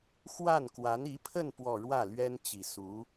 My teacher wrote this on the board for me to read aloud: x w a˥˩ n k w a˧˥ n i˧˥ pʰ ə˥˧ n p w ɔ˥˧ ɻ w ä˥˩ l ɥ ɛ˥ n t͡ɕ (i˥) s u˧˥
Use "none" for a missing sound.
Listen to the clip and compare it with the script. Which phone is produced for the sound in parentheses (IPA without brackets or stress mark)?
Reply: i˨˩